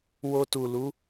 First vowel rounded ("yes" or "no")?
yes